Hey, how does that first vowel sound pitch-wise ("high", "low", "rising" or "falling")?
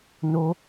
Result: high